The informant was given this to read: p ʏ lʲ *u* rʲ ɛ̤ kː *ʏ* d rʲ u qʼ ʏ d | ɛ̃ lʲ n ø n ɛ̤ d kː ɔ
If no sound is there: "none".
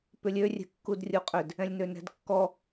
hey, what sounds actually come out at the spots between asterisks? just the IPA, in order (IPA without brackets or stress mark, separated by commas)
ø, u